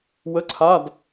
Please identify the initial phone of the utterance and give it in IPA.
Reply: w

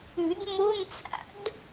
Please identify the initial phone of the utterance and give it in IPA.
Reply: ʉ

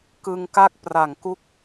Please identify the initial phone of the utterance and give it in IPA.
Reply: k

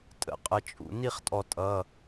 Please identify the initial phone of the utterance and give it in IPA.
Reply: tʼ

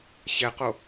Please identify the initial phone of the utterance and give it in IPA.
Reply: ɕ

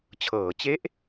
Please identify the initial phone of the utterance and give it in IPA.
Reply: t͡ɕʰ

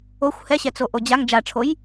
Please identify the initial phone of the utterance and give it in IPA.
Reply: o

